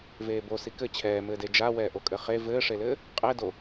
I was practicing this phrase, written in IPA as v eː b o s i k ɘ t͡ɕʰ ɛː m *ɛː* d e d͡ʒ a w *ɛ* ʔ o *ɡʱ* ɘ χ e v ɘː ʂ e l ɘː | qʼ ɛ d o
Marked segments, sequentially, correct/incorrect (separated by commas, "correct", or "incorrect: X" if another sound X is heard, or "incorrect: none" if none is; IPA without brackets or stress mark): incorrect: ɘː, incorrect: ɛː, incorrect: kʼ